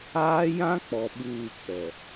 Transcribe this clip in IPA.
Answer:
aː˦ j ã˦ k͡p ɔ˨ ɓ uː˦˨ k͡p ɛ˨

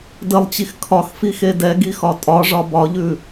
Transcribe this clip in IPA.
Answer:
d ə lˠ t͡ɕ i x kʰ ɒ x f i x e d ɛ ɡ i x ɒ tʼ ɒ ʐ ɒ b ɒ ʎ ʉ

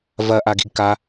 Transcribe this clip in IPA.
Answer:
v ɐ ʔ a ɡ i̤ ɡ k a

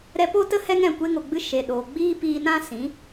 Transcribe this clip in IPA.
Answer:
ɾ ɛ˧ p o˦ t ə˦ h ɛ˦ ŋ ɛ̃˦˨ kʷ e˧ ŋ o˨ ɡ͡b ɨ˧ ʃ e˨ ɗ oː˨ ɡ͡b iː˦ p iː˧ n ã˦ s ĩ˨˦

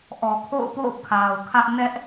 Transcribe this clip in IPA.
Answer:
ʔ ɔ˨ kʰ o̰˦˨ ʊ̯ p o̰˦˨ ʊ̯ kʰ a˨ ʊ̯ kʰ ä˦ ʔ n ɛ˦ ʔ

